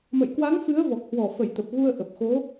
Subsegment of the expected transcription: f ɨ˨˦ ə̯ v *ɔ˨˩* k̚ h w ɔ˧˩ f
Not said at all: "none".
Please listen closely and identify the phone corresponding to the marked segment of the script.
ɔ˨˩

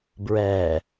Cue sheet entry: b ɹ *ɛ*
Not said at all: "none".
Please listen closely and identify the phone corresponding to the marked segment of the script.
ɛ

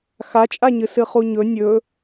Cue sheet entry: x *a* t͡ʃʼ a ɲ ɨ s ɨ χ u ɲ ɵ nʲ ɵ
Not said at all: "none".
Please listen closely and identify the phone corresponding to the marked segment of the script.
a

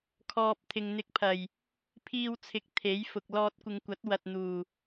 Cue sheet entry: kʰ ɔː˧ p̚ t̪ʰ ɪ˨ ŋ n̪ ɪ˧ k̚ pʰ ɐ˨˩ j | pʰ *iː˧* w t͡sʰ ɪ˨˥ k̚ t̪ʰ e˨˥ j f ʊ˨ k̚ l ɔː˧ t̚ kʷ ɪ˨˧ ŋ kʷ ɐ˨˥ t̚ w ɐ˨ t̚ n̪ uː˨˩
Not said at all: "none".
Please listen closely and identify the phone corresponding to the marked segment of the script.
iː˧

